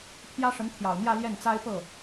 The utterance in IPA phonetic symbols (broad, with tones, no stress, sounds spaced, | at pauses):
pʰ j ä˥ ʂ ə˧˥ n t̪ʰ j ɑ˨˩ ʊ̯ n̪ j ä˥˧ l j ɛ˥˩ n t͡s a˥ ɪ̯ p ɤ˥˩